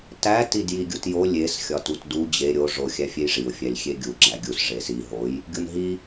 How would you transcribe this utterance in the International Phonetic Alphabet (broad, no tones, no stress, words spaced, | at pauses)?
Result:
tæ tidjiɡʲutjo lʲes xʲɒtutdu d͡ʑe ɾʲo ʐo xʲæfʲejʐiʊ̯ fʲælʲxʲeɡʲu ɡ͡ǁæɡʲus ʐesi ɦoj | ɡʲonɦi